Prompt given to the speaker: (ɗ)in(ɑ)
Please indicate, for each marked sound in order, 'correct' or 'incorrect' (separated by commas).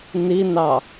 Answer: incorrect, correct